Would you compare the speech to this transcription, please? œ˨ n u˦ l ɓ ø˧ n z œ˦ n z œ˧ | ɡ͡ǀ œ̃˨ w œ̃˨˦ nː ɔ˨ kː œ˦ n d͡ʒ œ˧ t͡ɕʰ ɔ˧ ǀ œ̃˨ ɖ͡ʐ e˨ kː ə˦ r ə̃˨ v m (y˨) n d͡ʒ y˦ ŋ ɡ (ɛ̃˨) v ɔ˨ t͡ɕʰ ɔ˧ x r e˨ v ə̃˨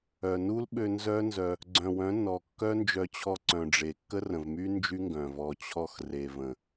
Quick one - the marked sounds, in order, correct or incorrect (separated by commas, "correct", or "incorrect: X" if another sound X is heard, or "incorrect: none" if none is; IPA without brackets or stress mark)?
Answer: incorrect: y˦, incorrect: œ̃˨